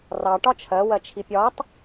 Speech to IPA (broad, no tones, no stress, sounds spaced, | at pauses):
r ɑ ʈ ɒ t͡ʃʰ ɜ w ɜ t͡ʃʰ i pʲ ɒ tˤ